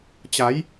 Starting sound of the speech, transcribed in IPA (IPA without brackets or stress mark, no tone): t͡ɕ